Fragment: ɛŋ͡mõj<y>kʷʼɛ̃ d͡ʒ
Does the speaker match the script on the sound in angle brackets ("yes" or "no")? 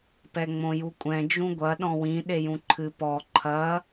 no